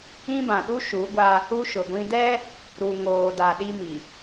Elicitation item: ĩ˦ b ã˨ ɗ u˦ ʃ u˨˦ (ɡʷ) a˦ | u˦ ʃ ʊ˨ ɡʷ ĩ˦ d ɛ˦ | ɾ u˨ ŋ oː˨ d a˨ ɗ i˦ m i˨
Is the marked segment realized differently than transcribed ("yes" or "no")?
no